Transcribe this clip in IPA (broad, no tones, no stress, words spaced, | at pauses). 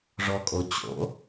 ʐɔkʼo t͡ɕo̰